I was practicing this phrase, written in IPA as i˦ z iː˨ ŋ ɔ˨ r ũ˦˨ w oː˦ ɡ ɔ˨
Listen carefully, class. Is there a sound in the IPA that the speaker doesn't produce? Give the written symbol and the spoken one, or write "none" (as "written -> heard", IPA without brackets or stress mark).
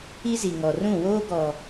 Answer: iː˨ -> i˨